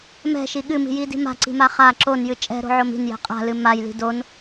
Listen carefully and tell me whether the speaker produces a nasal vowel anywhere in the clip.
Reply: no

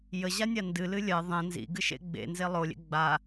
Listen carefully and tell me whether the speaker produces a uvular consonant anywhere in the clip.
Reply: no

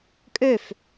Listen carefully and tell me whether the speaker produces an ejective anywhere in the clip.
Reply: yes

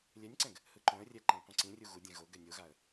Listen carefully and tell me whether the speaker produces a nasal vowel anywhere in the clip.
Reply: yes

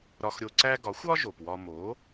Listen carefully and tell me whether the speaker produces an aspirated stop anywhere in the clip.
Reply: no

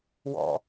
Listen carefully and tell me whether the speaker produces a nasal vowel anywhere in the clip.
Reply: no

